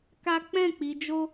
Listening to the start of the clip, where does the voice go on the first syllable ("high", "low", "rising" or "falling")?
high